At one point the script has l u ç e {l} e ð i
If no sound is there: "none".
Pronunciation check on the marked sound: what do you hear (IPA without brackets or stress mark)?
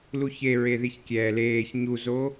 ɹ